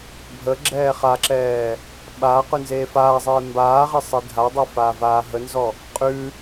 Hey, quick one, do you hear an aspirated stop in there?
no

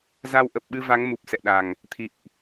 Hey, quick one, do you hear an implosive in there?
yes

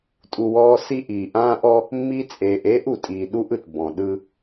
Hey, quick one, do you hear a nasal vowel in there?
yes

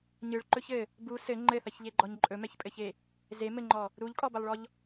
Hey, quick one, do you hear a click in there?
yes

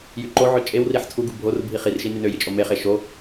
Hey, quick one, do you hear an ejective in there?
yes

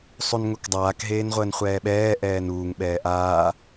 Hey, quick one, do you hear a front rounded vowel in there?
no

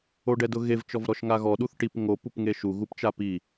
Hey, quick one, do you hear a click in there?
no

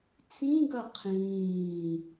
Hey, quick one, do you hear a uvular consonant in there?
yes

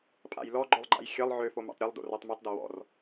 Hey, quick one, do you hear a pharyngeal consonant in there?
yes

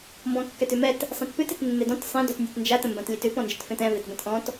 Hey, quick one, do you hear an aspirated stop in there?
no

